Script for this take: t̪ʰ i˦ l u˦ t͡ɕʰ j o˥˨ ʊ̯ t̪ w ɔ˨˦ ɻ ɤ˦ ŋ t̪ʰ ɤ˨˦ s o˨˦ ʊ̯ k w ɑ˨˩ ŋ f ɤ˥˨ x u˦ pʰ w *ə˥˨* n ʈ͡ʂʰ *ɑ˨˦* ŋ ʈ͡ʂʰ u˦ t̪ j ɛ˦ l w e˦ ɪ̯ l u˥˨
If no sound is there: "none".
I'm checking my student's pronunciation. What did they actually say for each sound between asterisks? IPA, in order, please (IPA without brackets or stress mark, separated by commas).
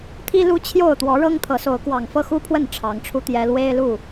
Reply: ə˥˨, ɑ˨˦